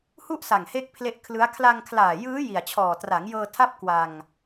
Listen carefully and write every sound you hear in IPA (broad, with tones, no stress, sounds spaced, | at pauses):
h u˥˩ ʔ s a˨˩ ŋ h e˦˥ k̚ pʰ l e˦˥ ʔ kʰ l ɯ˦˥ a̯ kʰ l a˧ ŋ kʰ l aː˨˩ j ɯː˦˥ j i˨˩ a̯ t͡ɕʰ ɔː˨˩ t r a˩˦ ŋ j ɤː˧ tʰ a˦˥ p̚ k w a˧ ŋ